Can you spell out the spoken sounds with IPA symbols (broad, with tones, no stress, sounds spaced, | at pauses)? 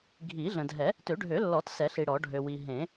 ɡʱ i˨˩˦ ɮ ə̃˨ dʱ ɛ˨˩˦ | t ø˨˩˦ ɖʱ ø˨˩˦ lː ɔ˨˩˦ t s ɛ˨˩˦ ɬ i˨ ɽ ɔ˨˩˦ ɖʱ ø˨ w i˨ ɦ ẽ˨˩˦